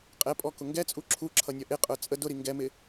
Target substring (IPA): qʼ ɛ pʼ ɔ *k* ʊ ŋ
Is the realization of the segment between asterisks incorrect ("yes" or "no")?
no